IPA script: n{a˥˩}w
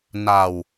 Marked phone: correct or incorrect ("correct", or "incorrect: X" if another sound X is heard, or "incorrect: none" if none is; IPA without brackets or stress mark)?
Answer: incorrect: a˧